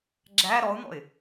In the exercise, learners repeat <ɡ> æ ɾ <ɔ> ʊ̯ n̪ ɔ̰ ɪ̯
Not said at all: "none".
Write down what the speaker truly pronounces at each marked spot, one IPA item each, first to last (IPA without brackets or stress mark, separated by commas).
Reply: ɡ͡ǁ, ɔ